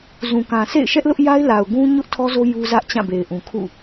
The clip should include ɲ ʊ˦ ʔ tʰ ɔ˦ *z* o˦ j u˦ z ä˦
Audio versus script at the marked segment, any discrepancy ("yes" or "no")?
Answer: no